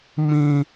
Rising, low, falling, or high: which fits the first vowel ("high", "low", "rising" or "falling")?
high